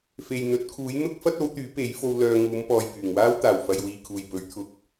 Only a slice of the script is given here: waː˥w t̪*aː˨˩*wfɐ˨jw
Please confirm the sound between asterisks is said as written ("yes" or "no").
yes